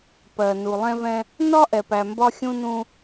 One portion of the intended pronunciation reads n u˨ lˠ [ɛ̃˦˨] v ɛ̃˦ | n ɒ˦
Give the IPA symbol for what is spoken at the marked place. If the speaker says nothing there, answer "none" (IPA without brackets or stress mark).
ɛ̃˦